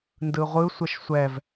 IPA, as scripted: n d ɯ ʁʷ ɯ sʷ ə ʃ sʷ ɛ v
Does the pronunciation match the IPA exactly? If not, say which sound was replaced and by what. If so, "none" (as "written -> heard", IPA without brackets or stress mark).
none